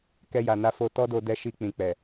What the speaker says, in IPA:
k ɛ˧ j a˨ n a˧ f o˧ t ɔ˦ d o˧ d ɛ˧ ʃ i˧ k͡p ĩ˨ k͡p ɛ˨

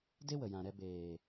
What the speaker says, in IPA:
d e˦ w ə˨ j ã˨ ɾ ɛ˧ b eː˨

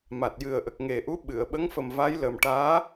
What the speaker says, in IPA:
m a˨˩ t̚ j ɨ˨˩ ə̯ ʔ ə˨˩ k̚ ŋ e˨˩ ʔ u˧˥ ɓ ɨ˨˩˨ ə̯ ɓ ə˧˥ ŋ f ə˨˩ m v a˧˥ j l ə˨˩ m ʈ aː˧˥

